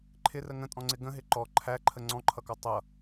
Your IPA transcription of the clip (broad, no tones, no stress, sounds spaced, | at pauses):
ǃʰ ɪ r ə ŋ ə̃ tʼ ɔ̃ ŋ͡ǀ ɪ ɡ ə̃ ɦ ɪ ǃ ɔ ǃʰ æ ǃʰ ə ŋ͡ǀ ɔ̃ ǃʰ ʌ k ɔ tˤ ʌ